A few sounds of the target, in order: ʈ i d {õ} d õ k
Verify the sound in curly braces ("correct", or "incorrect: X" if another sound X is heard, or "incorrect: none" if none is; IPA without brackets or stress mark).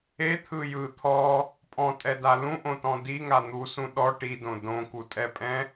correct